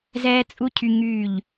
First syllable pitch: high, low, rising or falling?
high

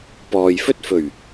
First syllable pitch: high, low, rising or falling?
low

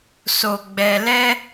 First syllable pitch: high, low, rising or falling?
low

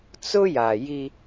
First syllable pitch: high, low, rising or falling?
high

